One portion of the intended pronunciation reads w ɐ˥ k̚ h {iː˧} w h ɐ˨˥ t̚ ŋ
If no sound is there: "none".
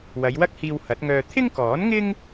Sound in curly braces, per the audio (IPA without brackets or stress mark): iː˧